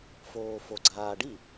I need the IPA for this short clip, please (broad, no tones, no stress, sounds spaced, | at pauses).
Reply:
f oː f o ɡ͡ǀ aː ɖ i